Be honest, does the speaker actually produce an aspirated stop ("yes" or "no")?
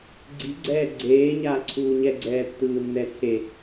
yes